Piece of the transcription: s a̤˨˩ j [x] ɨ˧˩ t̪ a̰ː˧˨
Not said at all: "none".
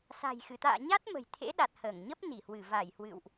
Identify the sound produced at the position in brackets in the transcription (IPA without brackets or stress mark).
x